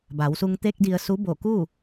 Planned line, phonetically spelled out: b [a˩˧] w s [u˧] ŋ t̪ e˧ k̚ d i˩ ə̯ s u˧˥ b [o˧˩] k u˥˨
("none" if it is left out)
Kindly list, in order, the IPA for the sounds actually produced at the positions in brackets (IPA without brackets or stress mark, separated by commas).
a˩˧, u˧, o˧˩